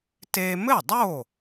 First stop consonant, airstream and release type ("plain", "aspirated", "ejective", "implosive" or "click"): plain